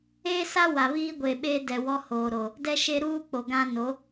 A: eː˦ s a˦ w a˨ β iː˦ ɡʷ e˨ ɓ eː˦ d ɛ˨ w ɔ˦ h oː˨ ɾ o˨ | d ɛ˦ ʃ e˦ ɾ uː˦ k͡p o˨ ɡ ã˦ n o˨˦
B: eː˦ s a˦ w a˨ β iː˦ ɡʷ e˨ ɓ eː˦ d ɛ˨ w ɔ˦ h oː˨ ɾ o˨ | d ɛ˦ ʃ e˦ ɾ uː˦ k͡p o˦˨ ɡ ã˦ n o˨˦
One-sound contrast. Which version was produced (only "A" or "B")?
A